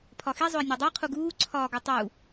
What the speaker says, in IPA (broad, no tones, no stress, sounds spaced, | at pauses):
pʰ ɒ x i zˤ o ɪ̯ nʲ ɒ dˤ i qʰ u ɡ uː ǀʰ ɒː ɡ o tˤ u